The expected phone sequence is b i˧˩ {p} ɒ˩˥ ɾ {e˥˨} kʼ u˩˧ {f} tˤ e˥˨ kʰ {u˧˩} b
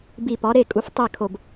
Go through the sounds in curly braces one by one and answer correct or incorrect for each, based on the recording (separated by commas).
correct, correct, correct, incorrect